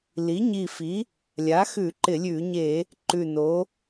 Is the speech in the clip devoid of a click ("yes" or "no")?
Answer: no